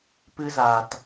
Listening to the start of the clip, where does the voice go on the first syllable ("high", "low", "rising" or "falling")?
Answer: high